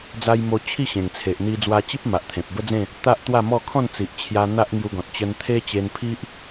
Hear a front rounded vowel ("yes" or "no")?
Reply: no